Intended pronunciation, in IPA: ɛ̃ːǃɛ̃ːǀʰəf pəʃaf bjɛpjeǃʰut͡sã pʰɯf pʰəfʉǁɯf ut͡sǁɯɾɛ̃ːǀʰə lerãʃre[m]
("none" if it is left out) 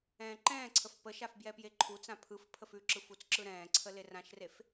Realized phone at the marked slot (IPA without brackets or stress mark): f